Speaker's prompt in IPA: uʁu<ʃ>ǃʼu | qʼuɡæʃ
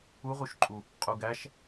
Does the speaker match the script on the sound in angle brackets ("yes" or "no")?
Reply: yes